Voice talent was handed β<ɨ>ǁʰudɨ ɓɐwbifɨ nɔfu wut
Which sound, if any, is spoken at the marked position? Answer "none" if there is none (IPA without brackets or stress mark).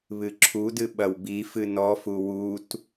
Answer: ɨ